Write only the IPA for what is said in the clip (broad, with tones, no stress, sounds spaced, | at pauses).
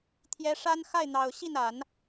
t̪ʰ j ɛ˧˥ ʂ a˥ n x a˥˩ ɪ̯ n̪ ɑ˨˩ ʊ̯ ɕ i˥˩ n a˨˩˦ n